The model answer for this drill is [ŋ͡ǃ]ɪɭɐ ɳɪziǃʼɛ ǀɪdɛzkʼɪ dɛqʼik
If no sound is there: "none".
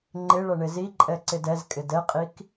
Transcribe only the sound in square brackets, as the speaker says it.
ŋ͡ǃ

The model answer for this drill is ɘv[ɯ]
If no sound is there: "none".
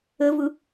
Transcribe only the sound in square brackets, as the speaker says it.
ɯ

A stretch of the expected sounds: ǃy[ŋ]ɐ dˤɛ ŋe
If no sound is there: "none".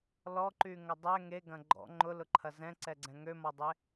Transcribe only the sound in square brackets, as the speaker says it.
ŋ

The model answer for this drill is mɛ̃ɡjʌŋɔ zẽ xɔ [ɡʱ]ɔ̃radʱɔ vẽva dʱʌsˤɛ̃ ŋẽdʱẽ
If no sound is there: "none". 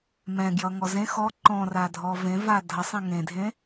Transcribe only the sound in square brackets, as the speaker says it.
ǃ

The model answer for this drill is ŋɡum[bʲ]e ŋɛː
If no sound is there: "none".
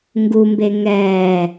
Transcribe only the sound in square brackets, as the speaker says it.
b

